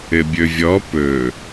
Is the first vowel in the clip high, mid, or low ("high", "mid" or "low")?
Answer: mid